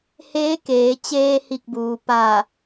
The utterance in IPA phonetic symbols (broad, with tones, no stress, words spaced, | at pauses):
heː˧˥keː˩˧ t͡ɕeː˧hi˧˩k̚buː˩ pa˧˩